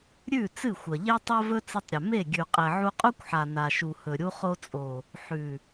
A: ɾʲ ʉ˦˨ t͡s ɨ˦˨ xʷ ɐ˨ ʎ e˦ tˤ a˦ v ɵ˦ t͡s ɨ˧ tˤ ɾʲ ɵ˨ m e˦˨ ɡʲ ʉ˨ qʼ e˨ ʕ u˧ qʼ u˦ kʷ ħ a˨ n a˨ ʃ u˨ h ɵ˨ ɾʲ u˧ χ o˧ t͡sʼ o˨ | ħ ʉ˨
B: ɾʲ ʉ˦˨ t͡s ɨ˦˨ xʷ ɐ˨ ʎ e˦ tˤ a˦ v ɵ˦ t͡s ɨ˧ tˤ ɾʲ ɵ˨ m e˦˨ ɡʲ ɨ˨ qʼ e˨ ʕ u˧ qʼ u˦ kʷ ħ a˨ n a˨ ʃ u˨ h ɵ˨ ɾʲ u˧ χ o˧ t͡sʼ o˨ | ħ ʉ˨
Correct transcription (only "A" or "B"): A